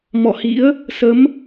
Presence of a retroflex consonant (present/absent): absent